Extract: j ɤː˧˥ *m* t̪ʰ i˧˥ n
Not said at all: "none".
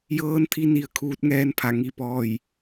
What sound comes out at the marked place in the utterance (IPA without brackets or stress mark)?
n